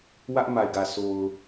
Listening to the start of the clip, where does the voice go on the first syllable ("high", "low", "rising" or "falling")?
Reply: high